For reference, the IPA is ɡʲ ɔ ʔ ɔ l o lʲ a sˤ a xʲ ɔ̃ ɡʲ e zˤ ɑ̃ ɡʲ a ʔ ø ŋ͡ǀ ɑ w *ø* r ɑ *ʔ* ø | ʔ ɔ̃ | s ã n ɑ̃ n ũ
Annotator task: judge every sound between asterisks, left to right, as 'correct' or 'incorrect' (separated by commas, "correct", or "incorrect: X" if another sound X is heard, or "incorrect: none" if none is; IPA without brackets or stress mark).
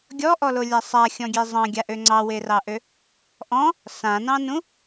incorrect: e, correct